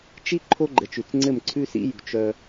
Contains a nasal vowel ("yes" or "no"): no